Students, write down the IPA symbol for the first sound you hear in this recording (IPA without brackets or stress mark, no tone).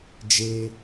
d͡ʒ